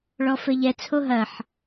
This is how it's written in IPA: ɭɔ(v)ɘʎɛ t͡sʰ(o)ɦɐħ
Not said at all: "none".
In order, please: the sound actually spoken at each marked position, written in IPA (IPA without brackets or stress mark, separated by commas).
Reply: f, o